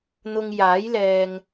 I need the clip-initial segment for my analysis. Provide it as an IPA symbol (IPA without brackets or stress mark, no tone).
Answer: n̪